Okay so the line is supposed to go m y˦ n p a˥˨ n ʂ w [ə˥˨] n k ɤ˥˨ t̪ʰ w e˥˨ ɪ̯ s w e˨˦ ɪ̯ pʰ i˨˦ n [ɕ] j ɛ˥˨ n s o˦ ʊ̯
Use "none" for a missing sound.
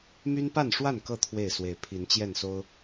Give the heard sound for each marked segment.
a˥˨, t͡ɕ

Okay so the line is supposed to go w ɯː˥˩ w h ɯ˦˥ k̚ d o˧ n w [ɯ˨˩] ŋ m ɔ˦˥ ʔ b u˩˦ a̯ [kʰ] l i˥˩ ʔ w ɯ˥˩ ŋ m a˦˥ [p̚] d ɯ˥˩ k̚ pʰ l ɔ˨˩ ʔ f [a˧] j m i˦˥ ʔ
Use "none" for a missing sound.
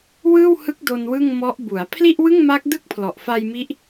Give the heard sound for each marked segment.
ɯ˥˩, pʰ, k̚, a˧

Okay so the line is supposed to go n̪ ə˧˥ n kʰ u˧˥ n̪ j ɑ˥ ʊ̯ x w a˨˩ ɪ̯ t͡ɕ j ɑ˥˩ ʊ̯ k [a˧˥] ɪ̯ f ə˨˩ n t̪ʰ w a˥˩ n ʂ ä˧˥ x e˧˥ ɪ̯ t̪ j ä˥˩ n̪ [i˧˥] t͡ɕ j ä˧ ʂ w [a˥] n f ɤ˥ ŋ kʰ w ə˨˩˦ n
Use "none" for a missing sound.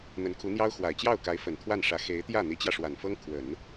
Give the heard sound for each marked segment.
a˧˥, i˧˥, a˨˩

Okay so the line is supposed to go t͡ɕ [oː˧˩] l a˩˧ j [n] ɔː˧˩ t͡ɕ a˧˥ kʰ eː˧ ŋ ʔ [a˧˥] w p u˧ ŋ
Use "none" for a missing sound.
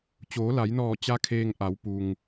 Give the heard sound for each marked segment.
oː˩˧, n, a˩˧

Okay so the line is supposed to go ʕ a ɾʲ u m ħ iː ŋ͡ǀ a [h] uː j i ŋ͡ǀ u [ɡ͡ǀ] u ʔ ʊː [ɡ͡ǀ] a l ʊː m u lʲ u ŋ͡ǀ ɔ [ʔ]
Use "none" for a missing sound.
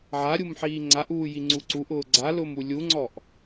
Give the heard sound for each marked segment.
ʔ, ǀ, ɡ͡ǀ, ʔ

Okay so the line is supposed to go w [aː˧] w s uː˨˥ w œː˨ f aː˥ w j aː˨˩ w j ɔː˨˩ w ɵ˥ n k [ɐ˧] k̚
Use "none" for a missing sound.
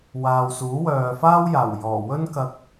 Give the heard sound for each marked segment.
aː˨, ɐ˧

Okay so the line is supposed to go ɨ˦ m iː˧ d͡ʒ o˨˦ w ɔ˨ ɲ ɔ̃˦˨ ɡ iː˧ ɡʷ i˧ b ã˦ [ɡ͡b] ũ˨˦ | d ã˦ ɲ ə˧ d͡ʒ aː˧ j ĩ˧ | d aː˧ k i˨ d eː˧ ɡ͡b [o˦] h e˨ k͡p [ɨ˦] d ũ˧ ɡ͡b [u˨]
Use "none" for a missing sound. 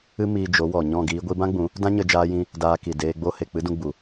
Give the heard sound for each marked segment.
ɡ͡b, o˦, ɨ˦, u˨

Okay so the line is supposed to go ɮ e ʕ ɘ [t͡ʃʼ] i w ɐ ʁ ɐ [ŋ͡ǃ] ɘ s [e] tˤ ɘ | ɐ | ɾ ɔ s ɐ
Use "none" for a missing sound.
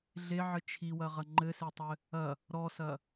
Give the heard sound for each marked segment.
t͡ʃʰ, ŋ͡ǃ, e

